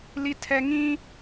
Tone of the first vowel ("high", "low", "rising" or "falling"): high